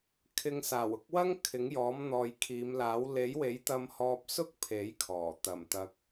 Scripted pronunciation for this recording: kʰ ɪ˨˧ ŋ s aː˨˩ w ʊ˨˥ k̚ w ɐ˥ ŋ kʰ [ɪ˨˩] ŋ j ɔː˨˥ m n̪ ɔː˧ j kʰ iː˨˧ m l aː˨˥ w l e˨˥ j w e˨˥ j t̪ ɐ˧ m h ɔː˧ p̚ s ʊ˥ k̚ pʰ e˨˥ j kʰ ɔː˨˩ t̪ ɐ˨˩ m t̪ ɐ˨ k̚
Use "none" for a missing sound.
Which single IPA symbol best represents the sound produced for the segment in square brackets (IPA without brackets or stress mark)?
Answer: ɪ˨˥